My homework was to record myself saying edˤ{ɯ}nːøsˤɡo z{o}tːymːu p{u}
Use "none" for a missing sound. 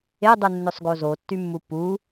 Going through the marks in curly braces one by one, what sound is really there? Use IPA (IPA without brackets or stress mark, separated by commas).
ɯ, o, u